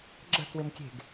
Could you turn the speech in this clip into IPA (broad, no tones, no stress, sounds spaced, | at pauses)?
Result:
ɡ͡ǁ ə̤ k w ɪ m kʲ e̤ ɡ